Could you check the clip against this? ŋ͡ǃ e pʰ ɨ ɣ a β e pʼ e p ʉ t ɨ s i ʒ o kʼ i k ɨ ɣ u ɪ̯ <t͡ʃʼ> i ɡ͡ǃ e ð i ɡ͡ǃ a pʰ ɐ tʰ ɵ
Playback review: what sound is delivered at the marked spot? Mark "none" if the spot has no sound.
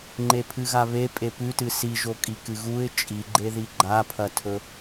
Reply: t͡ʃʼ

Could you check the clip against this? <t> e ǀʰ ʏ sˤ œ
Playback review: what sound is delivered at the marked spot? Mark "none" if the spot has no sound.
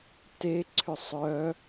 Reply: t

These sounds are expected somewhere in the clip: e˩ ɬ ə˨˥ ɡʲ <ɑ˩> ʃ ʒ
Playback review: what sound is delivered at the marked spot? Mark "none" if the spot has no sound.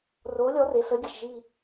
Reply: ə˩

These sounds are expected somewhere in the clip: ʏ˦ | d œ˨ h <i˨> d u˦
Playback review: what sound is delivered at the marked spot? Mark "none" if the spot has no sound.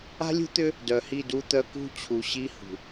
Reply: i˦˨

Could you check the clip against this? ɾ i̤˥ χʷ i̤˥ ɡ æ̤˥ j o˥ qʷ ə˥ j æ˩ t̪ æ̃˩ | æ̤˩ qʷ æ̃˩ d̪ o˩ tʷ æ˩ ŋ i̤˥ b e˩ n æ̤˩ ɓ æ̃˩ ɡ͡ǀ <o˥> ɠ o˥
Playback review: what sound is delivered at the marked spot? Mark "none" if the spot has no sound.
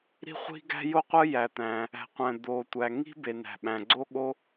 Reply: o˥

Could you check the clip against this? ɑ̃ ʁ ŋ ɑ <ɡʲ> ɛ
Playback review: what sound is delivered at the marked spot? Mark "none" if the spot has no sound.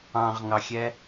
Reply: xʲ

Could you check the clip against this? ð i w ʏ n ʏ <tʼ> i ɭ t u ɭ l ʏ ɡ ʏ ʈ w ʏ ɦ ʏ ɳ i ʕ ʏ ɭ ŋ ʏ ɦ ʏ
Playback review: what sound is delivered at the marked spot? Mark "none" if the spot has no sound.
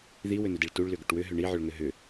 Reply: d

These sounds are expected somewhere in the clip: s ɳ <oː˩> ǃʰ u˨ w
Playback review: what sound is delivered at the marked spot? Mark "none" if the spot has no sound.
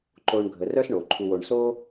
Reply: o˩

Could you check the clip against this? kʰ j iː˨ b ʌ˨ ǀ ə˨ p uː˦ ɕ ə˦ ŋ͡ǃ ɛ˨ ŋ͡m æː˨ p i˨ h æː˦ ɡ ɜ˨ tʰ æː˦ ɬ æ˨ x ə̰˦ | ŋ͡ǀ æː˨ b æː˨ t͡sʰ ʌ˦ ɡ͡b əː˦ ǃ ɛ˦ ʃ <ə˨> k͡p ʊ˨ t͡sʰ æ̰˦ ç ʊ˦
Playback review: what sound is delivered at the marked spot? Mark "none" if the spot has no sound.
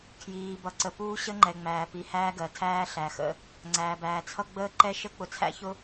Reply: ə˦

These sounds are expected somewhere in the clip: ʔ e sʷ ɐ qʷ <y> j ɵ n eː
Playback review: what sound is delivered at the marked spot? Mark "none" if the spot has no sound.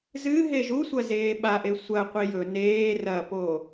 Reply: i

